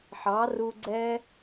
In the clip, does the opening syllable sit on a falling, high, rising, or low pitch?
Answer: rising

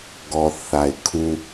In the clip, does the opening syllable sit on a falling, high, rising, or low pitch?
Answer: low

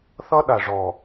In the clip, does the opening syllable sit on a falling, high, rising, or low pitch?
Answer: high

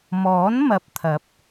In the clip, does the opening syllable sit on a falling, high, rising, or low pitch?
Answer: rising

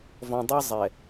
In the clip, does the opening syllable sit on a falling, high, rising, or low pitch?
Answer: low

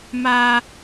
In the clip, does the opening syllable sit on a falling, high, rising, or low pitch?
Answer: high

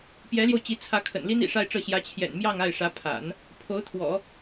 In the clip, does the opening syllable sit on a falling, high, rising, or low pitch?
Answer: rising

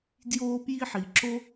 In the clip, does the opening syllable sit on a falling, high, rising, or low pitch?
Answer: high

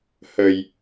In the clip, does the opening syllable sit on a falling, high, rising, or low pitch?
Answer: low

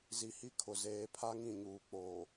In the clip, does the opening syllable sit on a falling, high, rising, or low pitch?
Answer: low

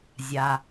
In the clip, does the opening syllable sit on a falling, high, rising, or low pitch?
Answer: low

